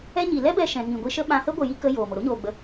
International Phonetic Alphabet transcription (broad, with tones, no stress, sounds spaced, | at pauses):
ɛ˧ ɲ i˨ l ɛ˦ b ɛ˧ ʃ ɛ̃˨ ŋ ĩ˨ ɡʷ i˧ ʃ ə˦ ɓ ã˧ h ə˦ ɡʷ ə˨ j i˧ k ə˧ j oː˨ m o˨ ɾ o˦ ɲ oː˨ ɡ͡b ə˨˦